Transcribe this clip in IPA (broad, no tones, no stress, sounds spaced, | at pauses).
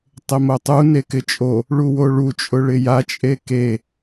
tˤ ɪ m o tˤ u n e k ɪ t͡ʃʼ o | ɭ u w o ɭ u t͡ʃʼ ʊ ɭ ɪ j a t͡ʃʼ e k e